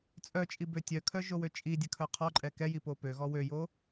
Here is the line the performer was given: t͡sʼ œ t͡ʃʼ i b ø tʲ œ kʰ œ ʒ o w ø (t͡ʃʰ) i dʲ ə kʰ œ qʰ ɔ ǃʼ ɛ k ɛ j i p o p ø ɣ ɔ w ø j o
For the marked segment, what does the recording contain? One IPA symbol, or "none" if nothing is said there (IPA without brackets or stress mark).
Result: t͡ʃʼ